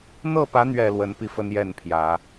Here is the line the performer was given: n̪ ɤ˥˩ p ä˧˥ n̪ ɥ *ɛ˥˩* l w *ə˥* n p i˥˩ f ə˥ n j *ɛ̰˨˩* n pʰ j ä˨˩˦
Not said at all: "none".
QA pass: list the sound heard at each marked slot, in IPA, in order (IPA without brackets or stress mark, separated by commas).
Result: ɛ˨˩, ə˧˥, ɛ˥˩